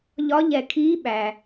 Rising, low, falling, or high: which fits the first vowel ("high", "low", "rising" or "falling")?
rising